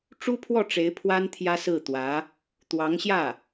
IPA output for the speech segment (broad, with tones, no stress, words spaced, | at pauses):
ʈ͡ʂu˥pʰwɔ˥˩ʈ͡ʂe˧˥ɪ̯ pʰwa˥nt̪ʰjä˥sɹ̩˥˩t̪wä˧˥ | t̪wɑ˧˥ŋɕjä˥˩